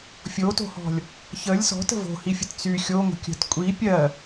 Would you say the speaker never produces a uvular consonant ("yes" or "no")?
yes